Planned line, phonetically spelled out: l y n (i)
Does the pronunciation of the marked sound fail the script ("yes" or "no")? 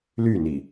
no